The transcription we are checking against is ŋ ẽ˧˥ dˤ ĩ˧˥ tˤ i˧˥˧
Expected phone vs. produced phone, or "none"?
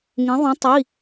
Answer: dˤ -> ðˤ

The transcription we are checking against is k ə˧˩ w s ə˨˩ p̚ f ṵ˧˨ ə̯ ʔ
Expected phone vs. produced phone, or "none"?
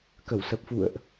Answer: none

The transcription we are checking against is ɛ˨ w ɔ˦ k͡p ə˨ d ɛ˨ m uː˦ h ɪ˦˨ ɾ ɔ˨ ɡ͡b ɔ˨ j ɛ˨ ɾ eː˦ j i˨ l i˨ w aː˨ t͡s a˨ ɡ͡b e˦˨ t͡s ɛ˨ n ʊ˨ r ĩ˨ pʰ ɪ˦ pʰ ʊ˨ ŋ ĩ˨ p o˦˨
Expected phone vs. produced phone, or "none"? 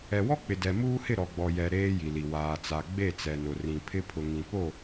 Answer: ə˨ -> ɪ˨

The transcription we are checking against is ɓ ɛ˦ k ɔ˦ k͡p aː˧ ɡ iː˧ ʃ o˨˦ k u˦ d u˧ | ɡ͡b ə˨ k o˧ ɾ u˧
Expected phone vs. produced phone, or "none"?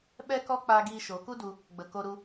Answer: none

